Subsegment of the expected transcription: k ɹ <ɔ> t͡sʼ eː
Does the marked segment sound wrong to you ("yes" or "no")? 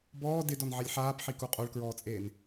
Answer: yes